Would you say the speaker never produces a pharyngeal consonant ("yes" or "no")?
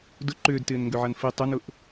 no